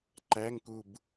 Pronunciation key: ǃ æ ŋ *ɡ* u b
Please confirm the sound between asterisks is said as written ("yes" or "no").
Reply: no